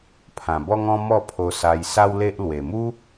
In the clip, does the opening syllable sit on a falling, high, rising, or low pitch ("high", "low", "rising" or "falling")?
low